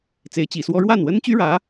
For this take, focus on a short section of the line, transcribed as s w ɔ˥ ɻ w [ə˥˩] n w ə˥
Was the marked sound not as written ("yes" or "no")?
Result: yes